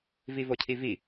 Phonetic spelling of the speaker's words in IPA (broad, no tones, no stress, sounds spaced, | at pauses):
v i v o cʰ i v i